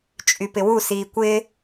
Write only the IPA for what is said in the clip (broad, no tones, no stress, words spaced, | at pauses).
t͡ʃʼypɪwu siːkʷɪː